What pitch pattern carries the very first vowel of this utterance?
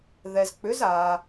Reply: low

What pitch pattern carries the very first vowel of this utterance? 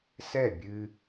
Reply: falling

